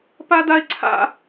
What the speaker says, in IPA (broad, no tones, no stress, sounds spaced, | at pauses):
p a d a e̯ ǀʰ a̰